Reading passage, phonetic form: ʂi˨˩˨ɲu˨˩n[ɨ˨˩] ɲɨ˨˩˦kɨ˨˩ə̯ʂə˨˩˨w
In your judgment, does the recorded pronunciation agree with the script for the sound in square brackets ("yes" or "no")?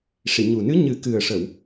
no